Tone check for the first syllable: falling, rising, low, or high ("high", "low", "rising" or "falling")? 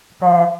low